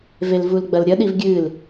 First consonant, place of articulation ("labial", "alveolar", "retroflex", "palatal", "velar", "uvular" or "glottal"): labial